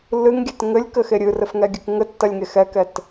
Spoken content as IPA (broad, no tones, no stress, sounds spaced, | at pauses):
lː ɨ ŋ ɡʲ ɛ t ŋ ɘ lʲ k ɘ x e ɾʲ ɨ r ɘ f ŋ ɛ ɡʲ ɨ k ŋ ɘ tː ɐ lʲ ŋ e x ɛ k ɛ t